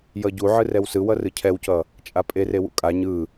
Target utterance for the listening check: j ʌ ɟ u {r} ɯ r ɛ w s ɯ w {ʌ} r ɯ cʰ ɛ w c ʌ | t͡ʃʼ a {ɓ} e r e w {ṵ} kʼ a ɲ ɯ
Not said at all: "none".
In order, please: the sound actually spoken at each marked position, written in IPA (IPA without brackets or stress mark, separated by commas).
ʕ, ʌ, pʼ, ṵ